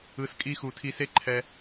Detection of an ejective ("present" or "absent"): present